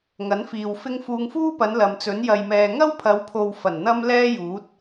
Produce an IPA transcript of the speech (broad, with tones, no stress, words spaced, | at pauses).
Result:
ŋɐ˨˥nfiː˨w fɪ˥ŋ fuː˧ŋfuː˥pɐ˨˧n lɐ˨mt͡sɵ˨˥n jɐ˨jmɛː˨ ŋɐ˥wpʰɐ˨˧wpʰo˨w fɐ˨˩nn̪ɐ˥m lɛː˥juː˨˥t̚